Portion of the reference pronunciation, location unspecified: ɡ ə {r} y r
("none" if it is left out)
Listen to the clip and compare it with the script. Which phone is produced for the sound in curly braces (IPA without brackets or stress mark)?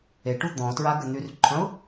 n̪